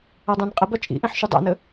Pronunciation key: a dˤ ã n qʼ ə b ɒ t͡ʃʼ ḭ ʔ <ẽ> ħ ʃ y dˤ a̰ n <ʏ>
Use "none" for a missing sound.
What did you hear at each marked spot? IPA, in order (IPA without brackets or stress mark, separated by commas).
ĩ, ə